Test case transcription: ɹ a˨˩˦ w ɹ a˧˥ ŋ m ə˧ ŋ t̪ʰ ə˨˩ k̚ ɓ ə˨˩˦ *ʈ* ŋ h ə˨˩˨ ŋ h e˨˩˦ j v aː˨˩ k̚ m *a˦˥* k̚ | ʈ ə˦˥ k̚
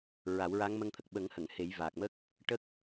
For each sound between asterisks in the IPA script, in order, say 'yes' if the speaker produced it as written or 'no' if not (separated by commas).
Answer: no, no